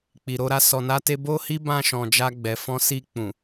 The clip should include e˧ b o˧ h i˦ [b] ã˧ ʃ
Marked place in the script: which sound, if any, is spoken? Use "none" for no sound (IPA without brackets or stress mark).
b